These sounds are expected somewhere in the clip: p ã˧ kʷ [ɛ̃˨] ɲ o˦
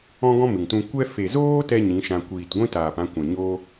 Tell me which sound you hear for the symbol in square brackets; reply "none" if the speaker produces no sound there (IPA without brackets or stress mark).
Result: ɛ̃˨